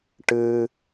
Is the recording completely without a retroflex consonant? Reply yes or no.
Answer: no